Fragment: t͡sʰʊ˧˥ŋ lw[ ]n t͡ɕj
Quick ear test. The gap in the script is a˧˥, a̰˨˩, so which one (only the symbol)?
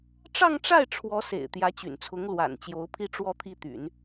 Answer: a̰˨˩